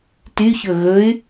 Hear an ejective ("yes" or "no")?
no